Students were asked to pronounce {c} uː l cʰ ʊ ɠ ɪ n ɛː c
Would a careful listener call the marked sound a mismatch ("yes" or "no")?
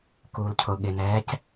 yes